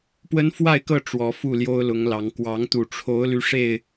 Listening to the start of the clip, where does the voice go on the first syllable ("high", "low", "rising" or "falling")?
high